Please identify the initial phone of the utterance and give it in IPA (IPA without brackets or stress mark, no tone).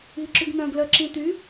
i